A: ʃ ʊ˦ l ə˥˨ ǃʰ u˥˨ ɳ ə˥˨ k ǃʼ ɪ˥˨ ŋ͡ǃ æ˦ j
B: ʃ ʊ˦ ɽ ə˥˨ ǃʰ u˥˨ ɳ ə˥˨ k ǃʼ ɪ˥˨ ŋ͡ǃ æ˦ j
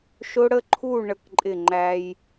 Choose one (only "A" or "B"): B